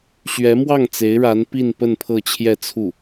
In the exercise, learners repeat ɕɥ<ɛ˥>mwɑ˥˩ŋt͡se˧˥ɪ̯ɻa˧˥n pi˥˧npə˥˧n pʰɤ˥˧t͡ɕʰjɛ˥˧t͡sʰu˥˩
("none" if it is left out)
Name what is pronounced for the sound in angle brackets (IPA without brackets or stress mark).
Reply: ɛ˧˥